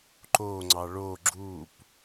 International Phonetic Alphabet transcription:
ǃ o ŋ͡ǀ ɑ ɭ o ɡ͡ǁ u p

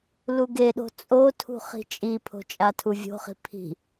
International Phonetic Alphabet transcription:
l u ɡ e ɗ o̤ t͡sʼ o tʰ ṳ χ i̤ t͡ʃʼ i pʰ o̤ t͡ʃʼ a tʰ u vʲ o̤ χ i̤ pʰ i̤

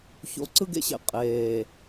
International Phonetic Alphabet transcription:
ç o̰˨ ǀ ɯ˦ ɡ ḛ˦ ɕ ḛ˨ qʼ eː˨

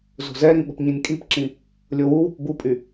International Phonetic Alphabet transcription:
z o̤ z ɛ ɾ ĩ ɓ ə̤ p ɲ ĩ nʲ kʼ i p ǁ ĩ | lʲ o w u w ṳ p b u pʼ y

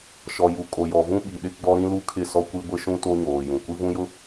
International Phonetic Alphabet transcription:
ʃ ɔ˨ j u˨ kʼ o˨ j ɔ˨ v ũ˦ ɓ i˨ ɗ ɪ˦ ɡ͡b ɔ˦ ɾ ĩ˦ l u˦ kʰ ɪ˦˨ s ɔ˦ kʷ i˦ ɡʷ ɪ˦ ʃ ũ˦ t o˦ ɲ oː˨ j ũ˨ kʷ i˦ v ũ˦ j ʊ˦

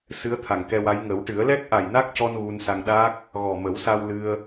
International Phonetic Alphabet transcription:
s ɨ˧˥ ə̯ t̪ʰ a˨˩ ŋ k ɛ˧ w a˧˥ j ŋ ə˨˩˦ w ʈ ɨ˨˩˦ ə̯ l ɛ˦˥ k̚ ʔ a˨˩ j n a˦˥ k̚ c ɔ˧ n ɣ u˧ n s a˧ ŋ ɗ aː˦˥ k̚ | ɣ ɔ˨˩ m ə˨˩˦ w s a˧ w l ɨ˧ ə̯

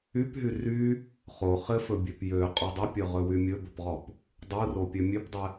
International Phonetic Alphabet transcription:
y p ɦ y r y | χ o χ ɘ f ɵ bʲ ø p j ø qʼ u dˤ ɵ pʲ ɵ ʁ ɵ w y mʲ ɵ b ɵ p ʁ ɔ p | dˤ u r o pʲ ø mʲ ø p dˤ ɘ

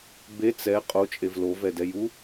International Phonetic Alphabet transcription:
b e t͡s ɛ qʼ o t͡ʃʼ e v l o v ɛ d ɛ j u

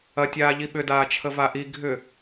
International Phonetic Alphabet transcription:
ɐ tʲ aː ʎ i ɓ ʏ d aː t͡ʃʰ ə v a ʔ i ɡʱ ʏ

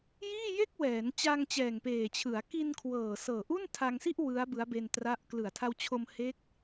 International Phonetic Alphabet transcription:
j iː˥˩ j e˥˩ k̚ w ɛː˩˦ n t͡ɕ aː˧ ŋ t͡ɕ ɛː˨˩ ŋ p eː˨˩ t͡ɕʰ ɯ˩˦ a̯ k i˧ n kʰ w ɤː˨˩ s ɤː˨˩ ʔ u˥˩ n tʰ a˧ ŋ s i˥˩ ʔ w ɯ˦˥ a̯ b ɯ˦˥ a̯ b e˧ n t r a˦˥ ʔ k l ɯ˨˩ a̯ tʰ a˧ w t͡ɕʰ o˧ m h e˦˥ k̚

